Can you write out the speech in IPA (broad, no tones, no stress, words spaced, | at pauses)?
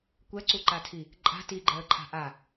kʷɛǀuǃatʰi | ǃʼa̤ tiɡ͡ǃɛə̯ǃʰa̤ ʔa